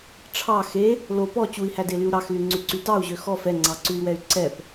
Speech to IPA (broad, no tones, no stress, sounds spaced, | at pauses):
ʈ͡ʂʰ ɑ x e | l o p ɔ t͡ɕ u i̯ h æ d e l y u̯ ɾ ɑ x l y ŋ͡ǀ ʉ ǀ y t ɑ u̯ ʑ ø x ɔ f ɛ ŋ͡ǀ ɑ ǀ ʉ i̯ w ɛ y̯ ǀ ɛ p